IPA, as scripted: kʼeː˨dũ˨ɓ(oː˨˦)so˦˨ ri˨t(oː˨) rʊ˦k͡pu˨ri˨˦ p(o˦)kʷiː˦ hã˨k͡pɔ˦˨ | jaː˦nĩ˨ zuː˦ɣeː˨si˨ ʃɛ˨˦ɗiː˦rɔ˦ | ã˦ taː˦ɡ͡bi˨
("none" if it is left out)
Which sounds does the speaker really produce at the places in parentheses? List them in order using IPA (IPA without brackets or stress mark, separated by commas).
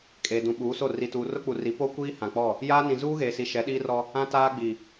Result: uː˨˦, uː˨, o˦